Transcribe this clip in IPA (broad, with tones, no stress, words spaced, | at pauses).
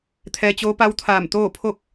t̪ʰɛː˧t͡ɕoː˧˥pa˧˥w t̪ʰaː˧˩mt̪oː˥˨ pʰo˥˨k̚